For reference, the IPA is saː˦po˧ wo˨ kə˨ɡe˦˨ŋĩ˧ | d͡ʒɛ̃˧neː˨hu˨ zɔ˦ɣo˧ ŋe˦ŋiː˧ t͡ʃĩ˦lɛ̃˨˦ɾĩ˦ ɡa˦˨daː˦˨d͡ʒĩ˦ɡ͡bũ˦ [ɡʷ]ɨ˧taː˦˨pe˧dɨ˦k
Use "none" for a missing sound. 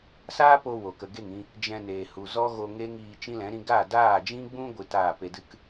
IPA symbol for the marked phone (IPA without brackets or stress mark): ɡʷ